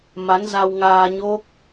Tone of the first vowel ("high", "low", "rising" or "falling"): rising